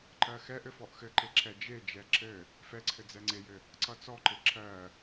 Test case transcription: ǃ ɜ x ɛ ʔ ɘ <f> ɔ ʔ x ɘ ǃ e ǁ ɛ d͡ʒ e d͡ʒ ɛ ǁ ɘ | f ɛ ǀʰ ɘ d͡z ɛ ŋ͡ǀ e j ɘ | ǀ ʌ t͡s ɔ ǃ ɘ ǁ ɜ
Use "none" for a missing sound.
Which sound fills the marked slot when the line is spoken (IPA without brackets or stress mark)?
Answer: f